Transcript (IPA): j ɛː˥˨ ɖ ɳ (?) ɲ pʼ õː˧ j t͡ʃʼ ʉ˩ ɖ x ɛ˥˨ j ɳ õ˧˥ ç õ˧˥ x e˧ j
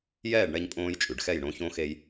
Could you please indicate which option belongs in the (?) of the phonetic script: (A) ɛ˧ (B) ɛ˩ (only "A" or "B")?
A